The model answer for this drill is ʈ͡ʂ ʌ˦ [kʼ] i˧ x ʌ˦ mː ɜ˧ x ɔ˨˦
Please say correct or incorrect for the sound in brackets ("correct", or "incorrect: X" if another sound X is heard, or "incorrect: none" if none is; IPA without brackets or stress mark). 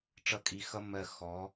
correct